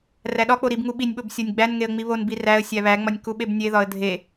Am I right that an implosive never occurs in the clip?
no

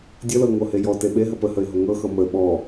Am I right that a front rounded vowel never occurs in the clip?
yes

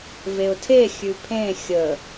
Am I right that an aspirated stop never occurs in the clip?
no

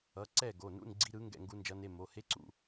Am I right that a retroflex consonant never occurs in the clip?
yes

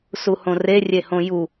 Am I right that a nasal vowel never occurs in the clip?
no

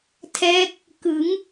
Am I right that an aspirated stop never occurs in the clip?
no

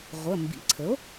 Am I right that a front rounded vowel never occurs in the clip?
yes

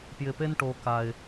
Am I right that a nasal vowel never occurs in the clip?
yes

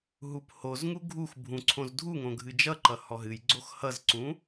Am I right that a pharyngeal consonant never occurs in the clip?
yes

